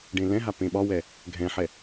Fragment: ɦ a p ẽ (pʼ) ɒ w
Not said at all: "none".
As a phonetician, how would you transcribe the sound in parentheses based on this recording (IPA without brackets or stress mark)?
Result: ɓ